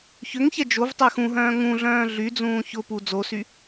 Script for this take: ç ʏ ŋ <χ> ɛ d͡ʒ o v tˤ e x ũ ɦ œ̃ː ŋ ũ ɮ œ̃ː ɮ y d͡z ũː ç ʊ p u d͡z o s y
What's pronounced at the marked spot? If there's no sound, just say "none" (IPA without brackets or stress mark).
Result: ç